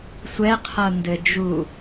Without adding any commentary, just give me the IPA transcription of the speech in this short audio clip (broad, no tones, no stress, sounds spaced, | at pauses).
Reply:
sʷ ɛ qʰ ʌ n d ɘ d͡ʒ u